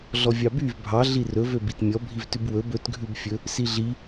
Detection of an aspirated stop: absent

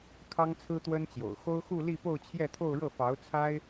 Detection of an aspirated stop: present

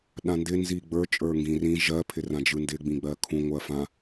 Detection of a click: absent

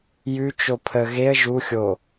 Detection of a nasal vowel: absent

